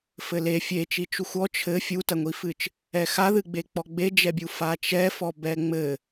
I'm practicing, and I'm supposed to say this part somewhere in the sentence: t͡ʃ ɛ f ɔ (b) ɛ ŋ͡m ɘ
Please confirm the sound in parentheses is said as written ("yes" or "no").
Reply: yes